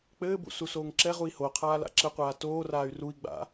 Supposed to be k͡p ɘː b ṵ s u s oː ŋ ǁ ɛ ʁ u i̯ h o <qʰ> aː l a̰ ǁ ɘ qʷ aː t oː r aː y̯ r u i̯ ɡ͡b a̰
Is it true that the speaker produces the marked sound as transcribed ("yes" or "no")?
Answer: yes